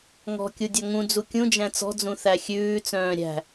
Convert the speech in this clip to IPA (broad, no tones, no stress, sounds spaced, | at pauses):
ŋ ɔ̤ kʲ u dʲ ɔ ŋ ũ d͡z u kʲ ũ d͡ʒ æ̃ t͡s ɔ̤ d͡z ũ θ æ xʲ ʉː t͡s œ̃ː ɾʲ æ̤